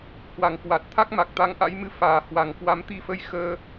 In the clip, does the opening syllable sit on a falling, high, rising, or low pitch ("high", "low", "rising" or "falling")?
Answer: low